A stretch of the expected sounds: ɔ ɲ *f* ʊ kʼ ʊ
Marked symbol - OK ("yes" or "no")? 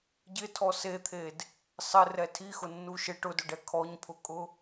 no